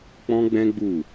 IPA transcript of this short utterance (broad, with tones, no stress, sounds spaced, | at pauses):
k͡p ɔ̃˦ ɡ͡b ɛ̃˦ ɡ͡b u˦˨